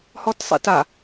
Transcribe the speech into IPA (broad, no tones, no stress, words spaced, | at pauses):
hɔtsˤḭta